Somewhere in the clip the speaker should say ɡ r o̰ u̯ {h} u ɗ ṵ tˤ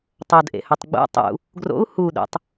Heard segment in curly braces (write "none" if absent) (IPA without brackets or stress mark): h